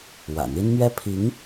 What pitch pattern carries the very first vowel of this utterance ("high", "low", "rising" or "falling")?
low